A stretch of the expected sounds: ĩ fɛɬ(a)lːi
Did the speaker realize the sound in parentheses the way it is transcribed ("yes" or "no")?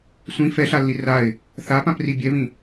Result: yes